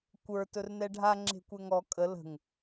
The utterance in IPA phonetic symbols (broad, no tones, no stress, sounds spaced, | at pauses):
kʷ ə˞ t ɵ r n ɛ ɖʱ a ŋ͡ǁ e̤ kʷ ɛ ŋ ɔ kʼ ə l ə̤ ŋ